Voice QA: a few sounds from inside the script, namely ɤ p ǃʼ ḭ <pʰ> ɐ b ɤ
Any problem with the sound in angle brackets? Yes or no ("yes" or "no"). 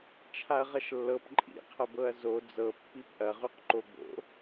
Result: yes